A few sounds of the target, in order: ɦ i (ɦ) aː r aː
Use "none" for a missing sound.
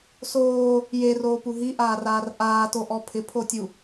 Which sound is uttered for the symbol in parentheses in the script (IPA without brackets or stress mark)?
ʔ